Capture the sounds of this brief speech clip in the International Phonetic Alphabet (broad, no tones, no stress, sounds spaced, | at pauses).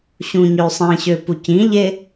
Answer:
ɕ ũ ɲ ø sˤ ĩ ɕ ø p u c ĩ ʎ e